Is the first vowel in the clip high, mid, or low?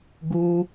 high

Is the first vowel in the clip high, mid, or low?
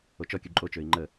mid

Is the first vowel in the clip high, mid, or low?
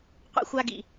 mid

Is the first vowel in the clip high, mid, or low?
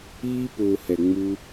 high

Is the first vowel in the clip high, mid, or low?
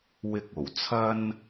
high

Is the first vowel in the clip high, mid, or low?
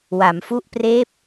low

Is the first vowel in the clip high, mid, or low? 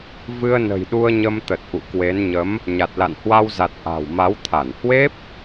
high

